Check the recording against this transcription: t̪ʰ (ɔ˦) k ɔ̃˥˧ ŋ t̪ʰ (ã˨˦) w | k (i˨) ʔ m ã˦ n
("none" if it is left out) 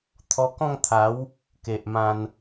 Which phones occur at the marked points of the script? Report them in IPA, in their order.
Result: ɔ˧, a˨˦, e˨

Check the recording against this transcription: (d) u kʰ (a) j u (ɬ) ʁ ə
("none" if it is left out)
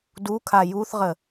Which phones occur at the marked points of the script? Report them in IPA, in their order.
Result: d, a, θ

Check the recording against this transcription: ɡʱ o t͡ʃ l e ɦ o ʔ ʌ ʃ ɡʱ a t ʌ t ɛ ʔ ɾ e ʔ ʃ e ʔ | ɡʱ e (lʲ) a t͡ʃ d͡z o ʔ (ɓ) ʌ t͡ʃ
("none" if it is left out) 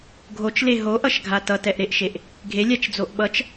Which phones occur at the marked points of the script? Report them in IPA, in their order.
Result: lʲ, ɓ

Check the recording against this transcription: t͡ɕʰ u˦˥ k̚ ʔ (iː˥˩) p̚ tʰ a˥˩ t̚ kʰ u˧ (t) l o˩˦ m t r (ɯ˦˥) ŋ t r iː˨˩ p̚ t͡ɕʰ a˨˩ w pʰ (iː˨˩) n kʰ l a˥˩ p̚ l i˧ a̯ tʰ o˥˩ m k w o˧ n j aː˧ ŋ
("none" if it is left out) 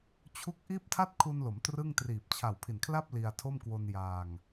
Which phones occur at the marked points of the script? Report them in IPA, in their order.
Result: iː˥˩, n, ɯ˥˩, i˨˩

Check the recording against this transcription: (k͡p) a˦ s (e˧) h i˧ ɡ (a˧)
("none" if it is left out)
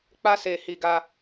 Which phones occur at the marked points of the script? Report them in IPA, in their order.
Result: k͡p, e˧, a˧

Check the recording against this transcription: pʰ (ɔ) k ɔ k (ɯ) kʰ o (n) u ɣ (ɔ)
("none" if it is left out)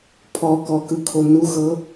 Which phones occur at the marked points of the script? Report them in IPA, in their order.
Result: ɔ, ɯ, n, ɤ

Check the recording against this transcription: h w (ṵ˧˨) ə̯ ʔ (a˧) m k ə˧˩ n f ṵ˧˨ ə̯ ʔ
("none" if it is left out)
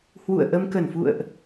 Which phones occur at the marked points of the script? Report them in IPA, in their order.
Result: ṵ˧˨, ə˧

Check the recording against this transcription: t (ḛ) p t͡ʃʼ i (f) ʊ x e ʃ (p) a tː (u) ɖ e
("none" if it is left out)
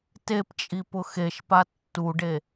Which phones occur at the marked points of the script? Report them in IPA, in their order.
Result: e, p, p, u

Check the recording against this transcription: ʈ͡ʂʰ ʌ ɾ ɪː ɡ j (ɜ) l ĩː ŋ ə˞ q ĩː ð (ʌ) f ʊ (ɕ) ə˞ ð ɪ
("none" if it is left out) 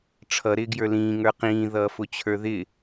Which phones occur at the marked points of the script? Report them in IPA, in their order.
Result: ə˞, ʌː, t͡ɕʰ

